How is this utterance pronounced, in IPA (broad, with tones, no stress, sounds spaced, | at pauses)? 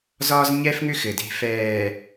z ɒː˦ z ɲ ɛ˦ f ŋ ʏ˦ x ɘ˨ d e̤˦˨ f ɛː˨